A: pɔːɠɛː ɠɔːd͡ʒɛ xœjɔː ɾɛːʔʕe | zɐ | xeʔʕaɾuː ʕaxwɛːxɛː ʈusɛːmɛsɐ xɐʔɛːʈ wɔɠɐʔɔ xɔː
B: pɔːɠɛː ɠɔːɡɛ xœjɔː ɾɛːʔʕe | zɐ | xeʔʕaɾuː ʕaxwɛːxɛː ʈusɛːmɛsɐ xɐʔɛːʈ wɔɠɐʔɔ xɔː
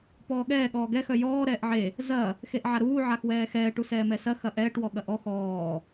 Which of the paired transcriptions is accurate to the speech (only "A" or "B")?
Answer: B